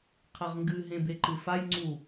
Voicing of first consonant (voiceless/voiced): voiceless